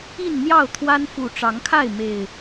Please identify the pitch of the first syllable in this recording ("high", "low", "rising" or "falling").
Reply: falling